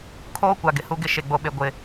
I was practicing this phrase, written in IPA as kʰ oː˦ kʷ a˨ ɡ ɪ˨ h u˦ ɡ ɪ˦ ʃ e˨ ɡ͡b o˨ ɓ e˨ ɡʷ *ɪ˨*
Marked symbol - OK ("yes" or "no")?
yes